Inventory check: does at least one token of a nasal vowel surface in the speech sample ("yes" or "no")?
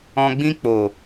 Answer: yes